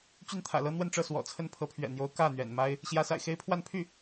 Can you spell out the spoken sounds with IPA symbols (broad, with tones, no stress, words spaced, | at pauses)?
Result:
t͡ɕy˥˩nt̪ʰä̰˨˩lɤ˥ n̪wə˥˧nʈ͡ʂɤ˥˩ swɔ̰˨˩t͡sʰə˥˩n pʰɤ˧˥pʰɥɛ̰˨˩n̪jo˧˥ʊ̯ kä˥˩ n̪ɥɛ̰˨˩nma˥ɪ̯ | ɕjä˧˥sa̰˨˩ɪ̯ xe˥ɪ̯pʰwa˥˧n pʰy˥˩